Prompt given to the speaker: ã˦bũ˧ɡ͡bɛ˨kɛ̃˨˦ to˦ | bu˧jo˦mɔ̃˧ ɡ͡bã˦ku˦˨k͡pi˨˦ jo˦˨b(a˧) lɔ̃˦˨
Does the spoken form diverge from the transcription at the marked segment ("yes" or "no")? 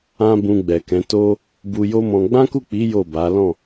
yes